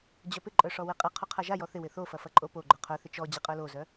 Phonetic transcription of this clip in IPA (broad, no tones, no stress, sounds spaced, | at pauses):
d͡ʑ œ p ɪ ǃʼ œ ʂ ɔ w ɪ qʼ ɐ qʰ o qʰ a ʒ a j ɔ θ ɪ w ɪ θ o f ɐ f ɐ ǃʼ o p o ɡ͡ǃ œ qʰ œ θ ɪ t͡ʃ ɔ d͡ʑ ɪ qʼ œ l o z œ